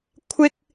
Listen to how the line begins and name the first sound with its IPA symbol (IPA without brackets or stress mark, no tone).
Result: kʷʰ